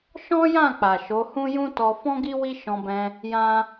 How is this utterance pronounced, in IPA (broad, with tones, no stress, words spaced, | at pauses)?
ʃɔ̃˦jã˦˨ k͡pa˨ʃo˨˦hũ˦ jũ˦tɔ˧ fɔ̃˦ɡi˦ wi˦ʃɔ̃˧bɛ̃˧ | jã˦